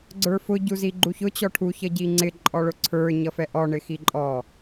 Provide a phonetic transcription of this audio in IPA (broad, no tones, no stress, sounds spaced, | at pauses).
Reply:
ɡ͡ǀ ə˞ f ʊ ɟ u z i ɡ͡ǃ u ç ʊ t͡ɕ ɔ ʈʰ u ç ʌ ɟ i ŋ͡ǀ ɪ ǃʼ ɔ ɭ ʊ ǀʰ ə˞ ɲ ʌ f ɛ ʔ ɔ ɳ ɪ x i ǃʼ ɔ